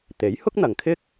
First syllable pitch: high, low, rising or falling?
rising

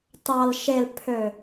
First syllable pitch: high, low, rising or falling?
low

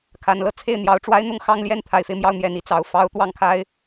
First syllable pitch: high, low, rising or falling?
low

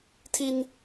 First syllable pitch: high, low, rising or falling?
high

